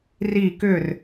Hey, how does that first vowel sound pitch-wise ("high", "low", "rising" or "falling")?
falling